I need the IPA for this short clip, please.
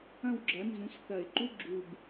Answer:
ɐ̃˦˨ w ɡ͡ǁ ɐ˩˥ n z ũ˩˥ s θ ɐ˨˩˦ ɪ̯ ǃ u˧˥˧ ɡ͡ǁ u˨˩ b

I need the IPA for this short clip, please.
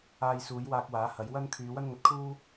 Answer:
aː˧ j s uː˨˥ j w aː˧ k̚ w aː˨˥ h ɐ˨˥ j w ɐ˥ n kʰ yː˨˧ w ɐ˥ n ŋ ɐ˧ t̚ kʰ uː˥

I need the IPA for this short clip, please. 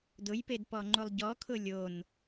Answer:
d ʊ j p e d p ɔ ŋ͡ǃ u lˠ ɟ ɔ kʰ ʊ lʲ o n

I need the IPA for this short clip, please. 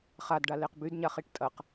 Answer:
χ a d ɖ a l e q b y d ɲ a χ i ʈ tʼ ɐ q

